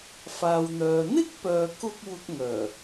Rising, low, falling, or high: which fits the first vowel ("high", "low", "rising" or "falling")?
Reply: low